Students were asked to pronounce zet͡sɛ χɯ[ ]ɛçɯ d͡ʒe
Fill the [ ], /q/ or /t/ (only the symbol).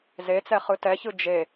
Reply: t